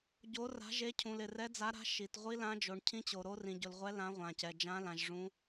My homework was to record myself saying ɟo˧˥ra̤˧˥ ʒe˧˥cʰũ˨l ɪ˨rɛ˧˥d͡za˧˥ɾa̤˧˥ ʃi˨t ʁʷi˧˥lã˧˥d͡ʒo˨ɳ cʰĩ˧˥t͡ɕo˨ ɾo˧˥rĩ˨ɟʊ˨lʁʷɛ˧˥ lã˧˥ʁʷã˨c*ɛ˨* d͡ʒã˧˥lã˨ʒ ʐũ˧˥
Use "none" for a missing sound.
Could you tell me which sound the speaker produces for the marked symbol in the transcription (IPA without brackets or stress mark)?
ɛ˨